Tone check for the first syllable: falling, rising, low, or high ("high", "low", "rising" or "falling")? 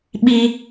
high